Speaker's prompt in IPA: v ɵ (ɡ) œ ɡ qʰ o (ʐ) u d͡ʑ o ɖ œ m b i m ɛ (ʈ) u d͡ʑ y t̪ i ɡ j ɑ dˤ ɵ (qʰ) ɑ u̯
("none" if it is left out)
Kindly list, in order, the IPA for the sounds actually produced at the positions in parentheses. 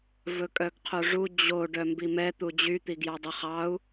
kʼ, ʐ, t̪, χ

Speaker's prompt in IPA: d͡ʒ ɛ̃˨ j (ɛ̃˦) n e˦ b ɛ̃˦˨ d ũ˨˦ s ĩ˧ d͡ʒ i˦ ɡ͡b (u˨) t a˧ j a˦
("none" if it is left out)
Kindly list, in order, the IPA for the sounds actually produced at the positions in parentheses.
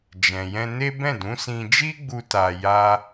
ɛ̃˧, u˧

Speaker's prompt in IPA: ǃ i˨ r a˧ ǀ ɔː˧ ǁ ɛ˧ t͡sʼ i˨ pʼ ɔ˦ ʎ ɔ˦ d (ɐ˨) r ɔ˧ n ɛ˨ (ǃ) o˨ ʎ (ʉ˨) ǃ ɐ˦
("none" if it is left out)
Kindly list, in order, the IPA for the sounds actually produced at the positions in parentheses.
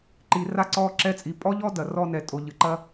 ɐ˨, tʼ, ɨ˨

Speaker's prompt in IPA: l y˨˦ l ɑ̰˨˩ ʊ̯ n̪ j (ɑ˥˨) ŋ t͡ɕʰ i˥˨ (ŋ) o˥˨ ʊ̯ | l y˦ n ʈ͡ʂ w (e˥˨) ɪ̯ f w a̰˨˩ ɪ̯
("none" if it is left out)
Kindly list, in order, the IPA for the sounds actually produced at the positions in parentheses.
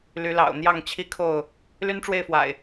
ɑ˥˨, kʰ, e˥˨

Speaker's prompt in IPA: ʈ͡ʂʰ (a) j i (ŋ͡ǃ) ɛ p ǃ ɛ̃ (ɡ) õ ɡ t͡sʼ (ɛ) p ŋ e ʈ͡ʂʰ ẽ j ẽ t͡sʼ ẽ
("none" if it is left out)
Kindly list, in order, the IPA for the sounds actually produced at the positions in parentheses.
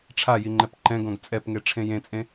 a, ŋ͡ǃ, ɡ, ɛ

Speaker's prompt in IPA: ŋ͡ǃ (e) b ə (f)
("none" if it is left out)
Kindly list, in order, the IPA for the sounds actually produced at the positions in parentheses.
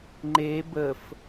e, f

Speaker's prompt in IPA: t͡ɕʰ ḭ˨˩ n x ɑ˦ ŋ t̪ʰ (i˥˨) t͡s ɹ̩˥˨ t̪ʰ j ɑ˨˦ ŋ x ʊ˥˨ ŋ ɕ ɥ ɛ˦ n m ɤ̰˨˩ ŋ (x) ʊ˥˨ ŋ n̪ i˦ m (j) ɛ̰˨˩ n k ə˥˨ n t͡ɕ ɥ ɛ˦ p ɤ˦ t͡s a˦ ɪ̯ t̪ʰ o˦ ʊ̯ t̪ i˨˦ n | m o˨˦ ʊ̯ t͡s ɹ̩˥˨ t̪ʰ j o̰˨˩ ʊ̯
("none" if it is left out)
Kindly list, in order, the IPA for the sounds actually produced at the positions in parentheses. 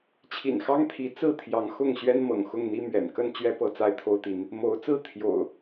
i˨˦, x, ɥ

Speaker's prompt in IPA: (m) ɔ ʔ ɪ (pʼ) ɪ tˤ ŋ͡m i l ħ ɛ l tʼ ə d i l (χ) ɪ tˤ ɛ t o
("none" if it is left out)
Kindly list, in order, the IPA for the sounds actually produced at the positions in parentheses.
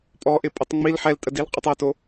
pʼ, pʼ, qʼ

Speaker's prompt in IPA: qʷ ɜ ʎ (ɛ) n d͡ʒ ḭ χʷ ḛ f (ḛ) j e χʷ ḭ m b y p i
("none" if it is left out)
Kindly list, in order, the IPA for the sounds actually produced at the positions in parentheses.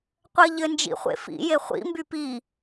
ɘ, ḭ

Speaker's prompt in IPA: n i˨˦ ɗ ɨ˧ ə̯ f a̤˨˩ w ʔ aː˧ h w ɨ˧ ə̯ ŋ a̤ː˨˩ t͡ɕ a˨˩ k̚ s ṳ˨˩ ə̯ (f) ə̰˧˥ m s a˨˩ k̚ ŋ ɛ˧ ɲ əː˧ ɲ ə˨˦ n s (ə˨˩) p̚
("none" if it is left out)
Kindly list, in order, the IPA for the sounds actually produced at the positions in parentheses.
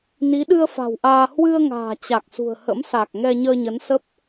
h, ə˦˥

